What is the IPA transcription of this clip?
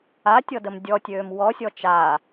a tʲ ɔ d ə m dʲ ɔ tʲ øː m w ɔ sʲ ɔ t͡ʃ a

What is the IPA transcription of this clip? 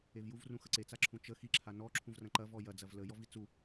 e v j u v r ũ x ə ǀ e t͡s a ǁʰ ũ t͡ʃ ə x i ǁʰ a n ɔ ǁʰ ũ v r ɐ̃ ǃ ɐ v ɔ j ɐ d͡z ɐ v l ə j ɔ v i t͡s u

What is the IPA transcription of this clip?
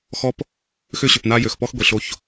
x ɔ˦ p | x ʏ˦ ɕ ʏ˨ p n a˦ j ø˨ x p ɔ˦ x ɡʷ i˨ ɬ o˦ ç

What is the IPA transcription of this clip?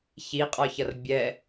ç i qʼ ɒ ç ʌ r bʲ ɛ

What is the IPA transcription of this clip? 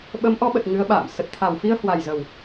ɓ ə˨˦ m ʔ ɔ˨˦ ɓ ə˨˩ t̚ ŋ ɨ˨˦ ə̯ ɓ a̰ː˧˨ m s ə˨˩ t̚ t̪ʰ a˨˩ w f i˧ ə̯ h w a˨˩ j z ə˨˩ w

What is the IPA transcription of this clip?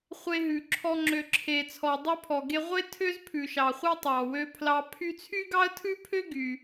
χʷ e˧ ɦ ʉ˩ ǁʰ ɔ˧ ŋ͡ǁ ø˩ ǁʰ e˩ t͡sʰ ɔ˩ dˤ ʉ˧ pʰ ɔ˩ ɡ e˧ ʁʷ e˥ tʰ ø˥ z pʰ ʉ˩ ʃ ɑ˩ χʷ e˥ tˤ ɑ˩ w ø˧ pʰ l ɑ˧ pʰ y˥ t͡sʰ y˥ ɡ ɑ˥ ə̯ tʰ ʉ˥ pʰ ø˥ ɡ y˩

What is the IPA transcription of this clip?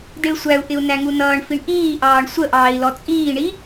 d i ɭ sʷ æ u̯ ʔ ɪ u̯ n æ ŋ u n ʌː ɳ f i ɳ ʔ iː ʔ ɑː ɳ sʷ ə ʔ ɑː i̯ l ɔ t͡sʼ iː ɳ i

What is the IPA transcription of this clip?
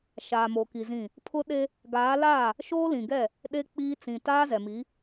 ʃ aː˨ m o˨ k i˨ z ĩ˦˨ | pʰ ʊ˦ ɗ e˦ | ɡ aː˨˦ l aː˦˨ | ʃ oː˦ l ĩ˨ ɡ ɛ˦˨ | ɗ e˦ k͡p iː˦ t͡s ĩ˨ t aː˦ z ɛ˨ m i˨˦

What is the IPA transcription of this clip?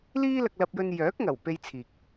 l iː˥ l ɐ˧ k̚ l ɐ˧ p̚ j ɵ˧ n j œː˨˥ k̚ ŋ ɐ˨˩ w p e˧ j t͡sʰ iː˨ k̚

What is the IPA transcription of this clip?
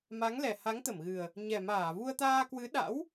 m a˨˦ ŋ l ɛ˨˩ h a˨˦ ŋ t̪ ə˧˩ m ɣ ɨ˨˩ ə̯ | ɲ ɛ˨˩ m aː˧˩ v u˧ ə̯ t̪ aː˧ k w ɨ˨˦ ɗ a̰˧˥ w

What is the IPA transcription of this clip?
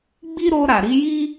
ɡ͡b i˦ ɾ o˧ ɾ a˨ ɾ i˧ j i˦

